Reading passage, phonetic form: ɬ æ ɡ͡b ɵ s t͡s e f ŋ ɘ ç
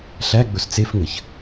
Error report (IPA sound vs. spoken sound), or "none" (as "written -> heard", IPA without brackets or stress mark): none